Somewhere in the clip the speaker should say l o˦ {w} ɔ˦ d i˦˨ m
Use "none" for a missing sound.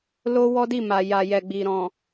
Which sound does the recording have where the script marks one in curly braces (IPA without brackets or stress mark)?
w